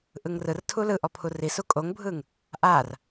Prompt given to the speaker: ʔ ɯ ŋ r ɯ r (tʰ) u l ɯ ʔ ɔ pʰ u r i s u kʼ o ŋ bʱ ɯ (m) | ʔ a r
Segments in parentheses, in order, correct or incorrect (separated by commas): correct, incorrect